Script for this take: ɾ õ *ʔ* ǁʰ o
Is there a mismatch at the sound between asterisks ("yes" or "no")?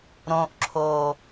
no